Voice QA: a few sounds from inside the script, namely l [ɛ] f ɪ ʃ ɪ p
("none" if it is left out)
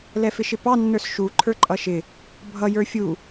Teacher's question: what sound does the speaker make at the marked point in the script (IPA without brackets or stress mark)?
ɛ